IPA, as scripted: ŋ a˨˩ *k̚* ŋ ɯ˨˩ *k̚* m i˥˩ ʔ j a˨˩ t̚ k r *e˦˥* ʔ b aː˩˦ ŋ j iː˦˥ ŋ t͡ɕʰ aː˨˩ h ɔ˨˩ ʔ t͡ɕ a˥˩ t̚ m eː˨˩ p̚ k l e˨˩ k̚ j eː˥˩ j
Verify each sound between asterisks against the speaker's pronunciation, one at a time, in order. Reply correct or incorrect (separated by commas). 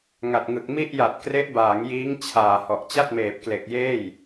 incorrect, correct, correct